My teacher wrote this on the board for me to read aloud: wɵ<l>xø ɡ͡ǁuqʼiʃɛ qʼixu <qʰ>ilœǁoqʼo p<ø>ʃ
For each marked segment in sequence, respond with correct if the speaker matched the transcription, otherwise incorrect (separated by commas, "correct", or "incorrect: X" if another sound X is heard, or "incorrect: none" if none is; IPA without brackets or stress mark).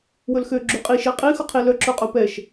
correct, correct, incorrect: ɛ